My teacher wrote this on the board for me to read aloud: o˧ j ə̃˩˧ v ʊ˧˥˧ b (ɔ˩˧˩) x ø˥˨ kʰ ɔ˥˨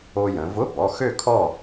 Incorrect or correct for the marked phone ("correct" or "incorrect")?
correct